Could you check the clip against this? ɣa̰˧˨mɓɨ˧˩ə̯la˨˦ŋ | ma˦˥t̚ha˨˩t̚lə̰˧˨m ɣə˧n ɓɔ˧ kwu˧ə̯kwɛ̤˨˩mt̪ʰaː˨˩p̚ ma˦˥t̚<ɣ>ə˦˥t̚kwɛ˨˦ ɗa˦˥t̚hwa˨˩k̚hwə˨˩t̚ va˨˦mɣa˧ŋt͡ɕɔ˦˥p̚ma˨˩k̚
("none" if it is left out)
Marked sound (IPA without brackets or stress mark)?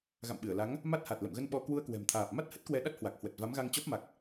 h